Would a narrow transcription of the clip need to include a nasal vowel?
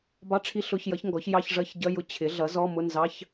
no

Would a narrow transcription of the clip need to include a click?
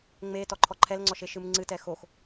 yes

